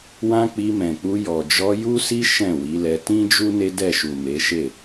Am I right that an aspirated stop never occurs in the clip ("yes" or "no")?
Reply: yes